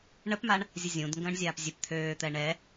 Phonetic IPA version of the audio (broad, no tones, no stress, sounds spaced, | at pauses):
ɳ ə p m a ɳ | zʲ ə zʲ ũ d ŋ ɡ ə̃ː ɳ zʲ aː p zʲ ø p t̪ʰ øː t̪ ɛ ɳ ɛ